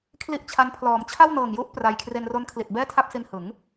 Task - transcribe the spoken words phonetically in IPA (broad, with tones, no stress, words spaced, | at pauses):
kʰli˥˩ʔt͡ɕʰa˦˥n pʰlɔː˩˦m t͡ɕʰa˥˩wnɤː˨˩ŋju˦˥ʔ pra˧j kʰre˧nro˦˥nkʰli˨˩t̚ bɛː˥˩tʰa˥˩p̚si˧nhɯ˩˦ŋ